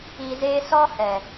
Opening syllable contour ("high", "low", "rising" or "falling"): low